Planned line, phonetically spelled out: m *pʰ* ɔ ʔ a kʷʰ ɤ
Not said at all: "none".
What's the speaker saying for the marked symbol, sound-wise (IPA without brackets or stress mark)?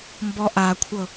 b